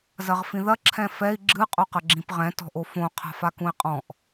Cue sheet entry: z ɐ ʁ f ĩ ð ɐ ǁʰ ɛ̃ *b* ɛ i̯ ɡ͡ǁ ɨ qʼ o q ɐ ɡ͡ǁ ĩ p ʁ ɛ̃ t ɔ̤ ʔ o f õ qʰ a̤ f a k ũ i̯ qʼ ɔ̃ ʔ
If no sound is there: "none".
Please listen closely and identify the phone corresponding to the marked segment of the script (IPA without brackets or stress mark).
f